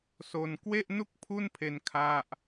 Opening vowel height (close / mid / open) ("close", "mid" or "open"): mid